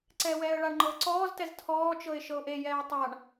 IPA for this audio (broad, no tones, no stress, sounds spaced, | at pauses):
ǀ ɛː w ɛː ə̯ ɭ a ɳ ŋ͡ǃ ɤː ǀ ɔː z t ɛ z tʰ ɔː t͡ʃ ɤ ɪ̯ ʃ ɤ ʊ̯ ʔ e j ɛː ə̯ tˤ a ɳ